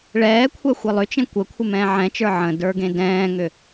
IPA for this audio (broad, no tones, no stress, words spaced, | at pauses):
ɭɛːkʷʰɛ xʷelˠʏt͡ʃẽ kʷə kʷʰɪmɛ̃ːʕɛ̃t͡ʃə˞ ʕə̃ də˞ɡẽdɛ̃ːŋʏ